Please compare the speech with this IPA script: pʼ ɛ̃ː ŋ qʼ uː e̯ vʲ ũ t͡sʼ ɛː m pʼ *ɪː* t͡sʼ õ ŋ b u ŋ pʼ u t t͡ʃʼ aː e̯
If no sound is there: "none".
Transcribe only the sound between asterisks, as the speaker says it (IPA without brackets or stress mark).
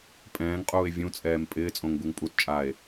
ɪː